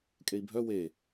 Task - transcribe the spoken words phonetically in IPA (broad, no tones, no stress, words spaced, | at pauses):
kʼei̯bʱœ we